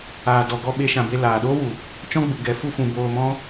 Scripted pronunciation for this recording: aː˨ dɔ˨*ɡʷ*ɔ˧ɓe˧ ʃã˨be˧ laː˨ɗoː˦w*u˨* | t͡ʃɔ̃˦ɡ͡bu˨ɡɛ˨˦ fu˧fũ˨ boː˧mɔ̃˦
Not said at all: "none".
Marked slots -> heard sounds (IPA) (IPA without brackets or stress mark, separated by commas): ɡ, u˨